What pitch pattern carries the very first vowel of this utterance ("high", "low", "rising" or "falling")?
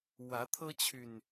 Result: rising